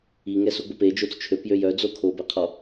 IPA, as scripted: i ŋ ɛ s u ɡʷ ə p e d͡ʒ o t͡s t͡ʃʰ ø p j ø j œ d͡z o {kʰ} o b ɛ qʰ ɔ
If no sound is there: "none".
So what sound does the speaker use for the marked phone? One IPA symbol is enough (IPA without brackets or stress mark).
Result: kʰ